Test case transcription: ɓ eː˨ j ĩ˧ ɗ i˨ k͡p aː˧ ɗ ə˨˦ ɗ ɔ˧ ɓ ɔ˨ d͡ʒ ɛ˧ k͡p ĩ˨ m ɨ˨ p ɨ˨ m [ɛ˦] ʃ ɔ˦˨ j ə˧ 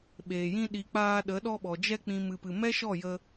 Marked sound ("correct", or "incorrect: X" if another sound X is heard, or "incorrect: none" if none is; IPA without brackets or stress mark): correct